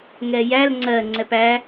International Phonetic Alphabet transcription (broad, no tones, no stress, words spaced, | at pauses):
ŋɛjæl ŋ͡ǀɜ ŋ͡ǀɛpæ